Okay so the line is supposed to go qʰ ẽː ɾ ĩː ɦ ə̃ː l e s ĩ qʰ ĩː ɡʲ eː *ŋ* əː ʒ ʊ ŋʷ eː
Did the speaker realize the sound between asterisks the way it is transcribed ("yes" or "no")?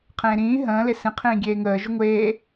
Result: yes